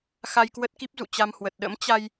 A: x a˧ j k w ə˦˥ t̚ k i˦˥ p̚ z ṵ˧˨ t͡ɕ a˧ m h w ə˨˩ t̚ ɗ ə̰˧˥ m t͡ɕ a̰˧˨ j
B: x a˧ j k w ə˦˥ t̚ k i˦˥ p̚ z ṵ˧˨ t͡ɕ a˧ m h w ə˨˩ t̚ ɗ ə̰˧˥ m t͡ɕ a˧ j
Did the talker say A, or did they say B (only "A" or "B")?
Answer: B